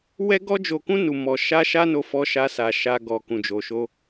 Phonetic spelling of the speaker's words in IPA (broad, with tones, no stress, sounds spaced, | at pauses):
w ɛ˦ ɡ ɔ˦ d͡ʒ o˧ k ũ˦ n u˧ m ɔ˧ ʃ a˦ ʃ a˦ n o˦ f ɔ˦ ʃ a˦ s a˧ ʃ a˦ ɡ ɔ˧ k ũ˨ d͡ʒ o˨ ʃ o˧